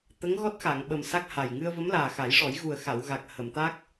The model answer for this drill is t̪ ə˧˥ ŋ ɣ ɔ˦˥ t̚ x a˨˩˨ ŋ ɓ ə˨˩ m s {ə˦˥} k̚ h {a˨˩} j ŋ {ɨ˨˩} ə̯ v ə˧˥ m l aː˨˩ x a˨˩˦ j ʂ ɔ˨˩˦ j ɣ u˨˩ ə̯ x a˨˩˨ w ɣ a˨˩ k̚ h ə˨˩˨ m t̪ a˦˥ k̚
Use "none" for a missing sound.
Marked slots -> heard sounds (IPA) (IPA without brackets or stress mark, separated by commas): a˦˥, a˨˩, ɨ˧